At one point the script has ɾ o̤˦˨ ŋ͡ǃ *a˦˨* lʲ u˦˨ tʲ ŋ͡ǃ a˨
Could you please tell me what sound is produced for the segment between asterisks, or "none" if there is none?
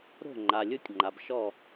a˨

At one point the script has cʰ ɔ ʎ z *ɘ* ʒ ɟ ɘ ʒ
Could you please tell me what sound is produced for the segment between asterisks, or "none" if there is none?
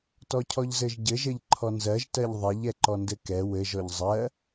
ɘ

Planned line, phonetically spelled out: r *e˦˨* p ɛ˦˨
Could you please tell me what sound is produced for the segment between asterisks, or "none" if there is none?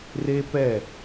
e˦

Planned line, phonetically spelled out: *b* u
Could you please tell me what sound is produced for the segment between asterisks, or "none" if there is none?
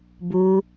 b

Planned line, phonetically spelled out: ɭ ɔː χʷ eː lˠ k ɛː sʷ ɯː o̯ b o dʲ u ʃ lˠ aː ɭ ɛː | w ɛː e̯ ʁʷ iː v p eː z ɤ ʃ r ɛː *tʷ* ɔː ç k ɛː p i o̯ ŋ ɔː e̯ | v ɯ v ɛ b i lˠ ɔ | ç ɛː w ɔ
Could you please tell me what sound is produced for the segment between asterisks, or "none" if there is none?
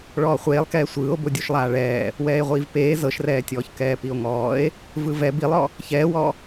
tʲ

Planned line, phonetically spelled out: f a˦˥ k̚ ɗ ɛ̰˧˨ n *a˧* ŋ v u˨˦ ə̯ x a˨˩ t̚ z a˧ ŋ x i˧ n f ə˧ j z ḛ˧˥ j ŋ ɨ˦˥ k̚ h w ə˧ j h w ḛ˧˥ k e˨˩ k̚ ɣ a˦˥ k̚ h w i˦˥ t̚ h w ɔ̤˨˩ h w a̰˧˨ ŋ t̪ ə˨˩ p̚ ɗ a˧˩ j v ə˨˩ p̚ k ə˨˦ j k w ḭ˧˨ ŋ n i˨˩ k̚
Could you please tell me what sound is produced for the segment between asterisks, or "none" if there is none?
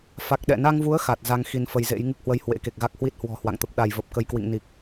a˧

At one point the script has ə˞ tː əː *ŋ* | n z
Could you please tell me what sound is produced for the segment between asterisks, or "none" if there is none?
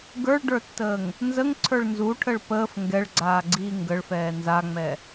ŋ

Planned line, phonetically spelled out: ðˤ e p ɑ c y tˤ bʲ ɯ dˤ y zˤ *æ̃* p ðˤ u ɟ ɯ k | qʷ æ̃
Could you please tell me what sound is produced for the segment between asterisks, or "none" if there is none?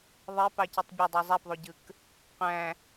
æ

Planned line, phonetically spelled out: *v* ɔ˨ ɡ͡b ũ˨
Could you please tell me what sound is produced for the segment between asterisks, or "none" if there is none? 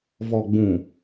v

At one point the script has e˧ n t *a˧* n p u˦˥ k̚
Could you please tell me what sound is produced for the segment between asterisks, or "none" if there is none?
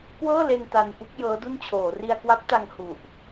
a˧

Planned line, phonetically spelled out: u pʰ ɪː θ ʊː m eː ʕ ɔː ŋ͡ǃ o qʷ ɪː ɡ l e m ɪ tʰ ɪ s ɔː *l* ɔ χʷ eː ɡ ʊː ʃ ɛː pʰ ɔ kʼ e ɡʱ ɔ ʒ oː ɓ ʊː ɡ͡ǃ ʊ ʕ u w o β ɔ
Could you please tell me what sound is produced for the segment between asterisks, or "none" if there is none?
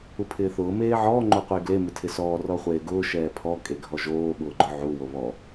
r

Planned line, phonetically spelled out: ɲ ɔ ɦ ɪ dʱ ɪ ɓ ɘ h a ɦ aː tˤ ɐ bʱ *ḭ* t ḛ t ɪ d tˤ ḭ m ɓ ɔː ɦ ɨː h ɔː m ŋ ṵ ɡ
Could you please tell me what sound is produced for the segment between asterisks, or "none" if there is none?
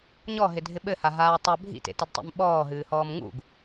ḭ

